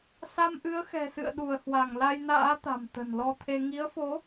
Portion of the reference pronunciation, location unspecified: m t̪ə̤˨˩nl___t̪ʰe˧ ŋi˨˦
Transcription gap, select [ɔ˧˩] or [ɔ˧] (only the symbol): ɔ˧